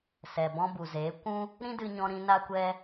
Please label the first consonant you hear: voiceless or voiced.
voiceless